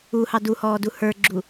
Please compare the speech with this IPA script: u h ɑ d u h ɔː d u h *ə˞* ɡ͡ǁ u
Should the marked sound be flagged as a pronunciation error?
no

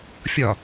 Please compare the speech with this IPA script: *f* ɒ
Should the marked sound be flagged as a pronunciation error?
yes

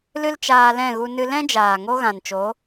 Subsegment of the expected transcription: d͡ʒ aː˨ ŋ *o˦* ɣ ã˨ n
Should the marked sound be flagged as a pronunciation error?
no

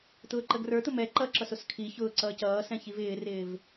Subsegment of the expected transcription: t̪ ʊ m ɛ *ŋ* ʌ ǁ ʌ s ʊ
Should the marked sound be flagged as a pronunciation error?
yes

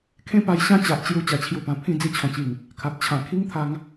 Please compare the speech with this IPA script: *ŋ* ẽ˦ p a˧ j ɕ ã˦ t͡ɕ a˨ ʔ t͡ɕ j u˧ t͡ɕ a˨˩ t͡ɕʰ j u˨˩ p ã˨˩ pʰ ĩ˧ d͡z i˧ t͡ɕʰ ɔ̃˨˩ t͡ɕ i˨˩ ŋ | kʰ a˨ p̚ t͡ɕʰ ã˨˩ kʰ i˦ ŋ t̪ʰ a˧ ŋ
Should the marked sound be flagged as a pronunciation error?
yes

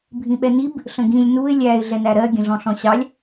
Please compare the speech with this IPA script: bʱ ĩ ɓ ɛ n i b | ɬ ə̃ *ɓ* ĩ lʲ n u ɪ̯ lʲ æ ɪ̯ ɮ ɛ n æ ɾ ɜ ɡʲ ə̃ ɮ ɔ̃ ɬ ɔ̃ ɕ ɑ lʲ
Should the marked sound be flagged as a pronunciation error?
yes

